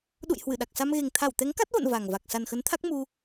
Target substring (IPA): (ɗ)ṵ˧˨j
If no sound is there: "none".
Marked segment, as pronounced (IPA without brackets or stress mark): ɗ